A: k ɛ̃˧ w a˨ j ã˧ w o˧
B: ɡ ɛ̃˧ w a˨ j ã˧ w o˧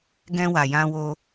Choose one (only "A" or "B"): B